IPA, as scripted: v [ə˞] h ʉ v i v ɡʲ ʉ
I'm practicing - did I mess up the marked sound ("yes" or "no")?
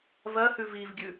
yes